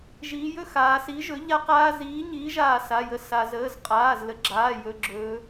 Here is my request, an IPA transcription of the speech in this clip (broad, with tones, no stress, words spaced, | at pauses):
ʒiː˩˧jɵ˦ xaː˩˧ si˨˥ʒɵ˨˥ʎa˦ qaː˦ ziː˨˥ ɲiː˨˥ʒaː˧˩ sa˩˧˩jə˧˩ sa˩zəː˩˧˩zqʼaː˩˧˩z lə˨˥ɡ͡ǁaː˩˧˩ jɵ˩˧˩ɡ͡ǁɵː˩˧